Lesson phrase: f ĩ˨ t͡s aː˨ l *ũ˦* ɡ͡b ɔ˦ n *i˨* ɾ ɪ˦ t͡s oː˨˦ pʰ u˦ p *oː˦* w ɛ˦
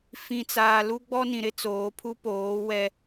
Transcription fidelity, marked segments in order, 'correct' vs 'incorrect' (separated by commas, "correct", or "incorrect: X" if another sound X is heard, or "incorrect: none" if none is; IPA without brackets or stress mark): incorrect: u˦, incorrect: ĩ˨, incorrect: oː˨˦